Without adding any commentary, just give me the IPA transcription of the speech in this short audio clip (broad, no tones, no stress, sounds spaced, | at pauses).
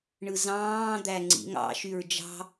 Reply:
ɳ ɯ z ɑ̃ː d̪ æ ŋ͡ǀ ḭ ŋ ɑ̰ ʃ y ɹ d͡ʒ ɑ̤